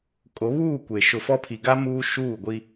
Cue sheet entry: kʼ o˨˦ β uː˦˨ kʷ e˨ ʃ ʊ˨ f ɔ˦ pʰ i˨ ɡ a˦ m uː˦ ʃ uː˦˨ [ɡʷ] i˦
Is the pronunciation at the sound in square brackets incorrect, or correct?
correct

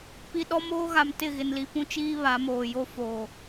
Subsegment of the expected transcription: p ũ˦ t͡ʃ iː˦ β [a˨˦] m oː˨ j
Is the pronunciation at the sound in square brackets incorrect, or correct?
correct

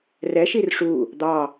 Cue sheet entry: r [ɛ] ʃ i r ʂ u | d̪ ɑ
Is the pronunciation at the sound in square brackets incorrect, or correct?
correct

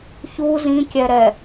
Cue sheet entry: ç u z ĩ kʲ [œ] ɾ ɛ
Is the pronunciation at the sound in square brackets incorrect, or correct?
incorrect: ɛ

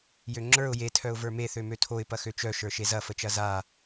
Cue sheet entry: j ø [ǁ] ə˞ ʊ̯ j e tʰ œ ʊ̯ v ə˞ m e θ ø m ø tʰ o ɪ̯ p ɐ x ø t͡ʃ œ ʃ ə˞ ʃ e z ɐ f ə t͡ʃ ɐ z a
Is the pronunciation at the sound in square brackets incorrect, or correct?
incorrect: ŋ͡ǁ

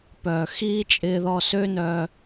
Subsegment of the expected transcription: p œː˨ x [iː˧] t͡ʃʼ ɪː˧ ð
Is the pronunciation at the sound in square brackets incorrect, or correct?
incorrect: iː˦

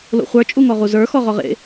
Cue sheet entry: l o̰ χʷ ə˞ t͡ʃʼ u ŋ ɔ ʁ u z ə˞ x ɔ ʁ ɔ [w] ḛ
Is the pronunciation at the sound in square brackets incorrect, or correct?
incorrect: ʁ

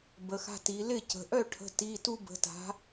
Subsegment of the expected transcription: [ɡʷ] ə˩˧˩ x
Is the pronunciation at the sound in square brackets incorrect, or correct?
incorrect: b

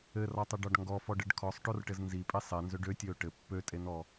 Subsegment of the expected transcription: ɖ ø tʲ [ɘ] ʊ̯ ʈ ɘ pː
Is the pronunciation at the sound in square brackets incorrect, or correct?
incorrect: ø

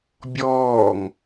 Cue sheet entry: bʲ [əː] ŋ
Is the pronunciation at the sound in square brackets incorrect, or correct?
incorrect: ɔː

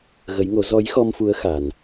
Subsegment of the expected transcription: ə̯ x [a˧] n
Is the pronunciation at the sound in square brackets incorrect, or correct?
correct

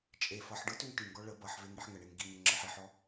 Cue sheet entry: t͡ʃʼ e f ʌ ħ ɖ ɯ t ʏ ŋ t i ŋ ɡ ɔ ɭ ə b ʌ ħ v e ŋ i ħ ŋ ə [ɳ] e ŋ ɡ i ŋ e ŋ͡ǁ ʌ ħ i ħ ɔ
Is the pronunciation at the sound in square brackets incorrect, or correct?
correct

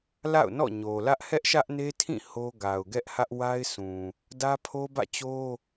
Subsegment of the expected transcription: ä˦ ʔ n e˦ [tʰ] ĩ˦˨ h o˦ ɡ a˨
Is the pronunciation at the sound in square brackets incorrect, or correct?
correct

